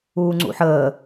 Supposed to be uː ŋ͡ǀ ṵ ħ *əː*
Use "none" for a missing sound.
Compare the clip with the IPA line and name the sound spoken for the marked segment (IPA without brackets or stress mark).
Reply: əː